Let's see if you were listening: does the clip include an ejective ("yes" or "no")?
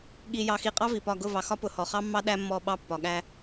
yes